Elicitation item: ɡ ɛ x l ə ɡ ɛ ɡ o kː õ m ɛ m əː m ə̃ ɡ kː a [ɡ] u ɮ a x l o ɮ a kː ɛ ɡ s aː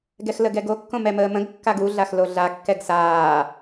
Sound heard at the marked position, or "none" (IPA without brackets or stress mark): ɡ